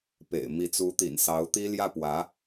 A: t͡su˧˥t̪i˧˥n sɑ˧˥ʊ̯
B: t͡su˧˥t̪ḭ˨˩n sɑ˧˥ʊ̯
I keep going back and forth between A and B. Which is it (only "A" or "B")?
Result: B